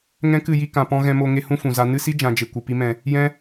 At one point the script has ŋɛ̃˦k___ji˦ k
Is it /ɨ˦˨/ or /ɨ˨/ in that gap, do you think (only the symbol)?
ɨ˦˨